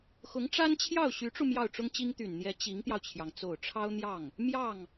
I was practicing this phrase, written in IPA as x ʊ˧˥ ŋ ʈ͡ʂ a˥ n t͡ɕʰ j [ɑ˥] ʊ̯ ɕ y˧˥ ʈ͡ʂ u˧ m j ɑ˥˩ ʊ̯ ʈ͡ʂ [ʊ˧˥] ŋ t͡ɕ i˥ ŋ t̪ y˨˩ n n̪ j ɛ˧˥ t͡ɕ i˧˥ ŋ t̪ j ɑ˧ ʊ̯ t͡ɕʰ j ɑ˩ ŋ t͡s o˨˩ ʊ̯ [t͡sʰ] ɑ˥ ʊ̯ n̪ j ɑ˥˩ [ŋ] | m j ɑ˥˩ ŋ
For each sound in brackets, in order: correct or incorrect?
incorrect: ɑ˥˩, incorrect: ʊ˥, incorrect: ʈ͡ʂʰ, correct

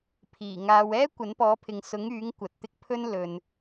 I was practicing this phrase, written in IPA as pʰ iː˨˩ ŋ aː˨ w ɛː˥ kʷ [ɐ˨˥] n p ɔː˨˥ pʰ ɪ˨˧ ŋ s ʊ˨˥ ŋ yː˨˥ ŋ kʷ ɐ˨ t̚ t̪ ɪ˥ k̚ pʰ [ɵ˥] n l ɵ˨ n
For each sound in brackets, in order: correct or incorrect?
correct, correct

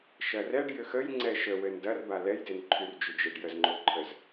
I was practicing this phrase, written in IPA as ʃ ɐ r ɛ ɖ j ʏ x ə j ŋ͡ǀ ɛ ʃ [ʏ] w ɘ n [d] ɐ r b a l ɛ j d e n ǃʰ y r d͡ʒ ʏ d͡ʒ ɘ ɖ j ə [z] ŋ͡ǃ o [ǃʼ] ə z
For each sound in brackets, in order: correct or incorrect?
incorrect: ə, correct, correct, incorrect: ǃʰ

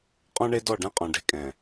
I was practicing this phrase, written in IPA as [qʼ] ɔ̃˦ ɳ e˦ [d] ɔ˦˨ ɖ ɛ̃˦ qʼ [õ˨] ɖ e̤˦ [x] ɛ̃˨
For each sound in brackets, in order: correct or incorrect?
correct, correct, incorrect: ɔ̃˨, incorrect: kʼ

